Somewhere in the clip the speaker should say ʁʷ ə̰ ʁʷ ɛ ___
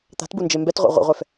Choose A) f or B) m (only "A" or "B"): A